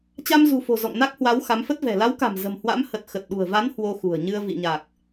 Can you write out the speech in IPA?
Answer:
t͡ɕa˧mzṳ˨˩fo̤˨˩ zɔ̰˧˨ŋna˦˥k̚hwa˨˦w xa˨˦mfə˦˥t̚vɛ̤˨˩ la˨˦wka̤˨˩m zə̤˨˩mhwa̰˧˥m hə˨˩t̚xə˨˩t̚ɗṳ˨˩ə̯ va˨˦n hwo˧xṳ˨˩ə̯ɲɨ˧ə̯ vḭ˧˨ɲa˨˩k̚

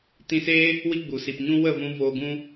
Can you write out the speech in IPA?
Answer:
tĩ˧seː˦ | wi˦ɡ͡bu˨si˨p ɲũ˦ wə˦˨vũ˧ voː˧ɡũ˦

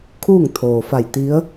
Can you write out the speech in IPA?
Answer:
kʰuː˥˨ŋt̪ʰoː˩fa˧˩jt̪i˧˥ə̯

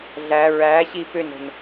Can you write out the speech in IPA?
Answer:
ɮæ ɹæɕi pʏnɾə̤n

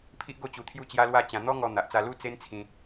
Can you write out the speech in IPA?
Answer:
pʰi˦ʔɡo˥˧t͡ɕu˧ t̪ʰju˦t͡ɕja˦lwa˥˧ t͡ɕã˧ n̪ɔ˦ŋɔ˧ n̪a˨ʔt͡sa˧lu˦ t͡se˦nt͡sʰĩ˧

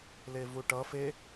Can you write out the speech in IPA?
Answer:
levuʈʌ fe

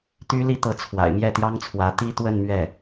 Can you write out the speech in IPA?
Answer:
t̪y˥li˥t̪ɤ˧˥ t͡sʰwa̰˨˩ɪ̯mjɛ˥˩t̪jɑ˥ŋt͡sʰwä˧˥ t̪i˥˧ t̪wə˥˧nmɥɛ˥˩

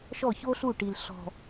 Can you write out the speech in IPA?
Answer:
ʃɔ˦˨ço˦ɬu˦˨ʈi˨l ɬɔ̤˨

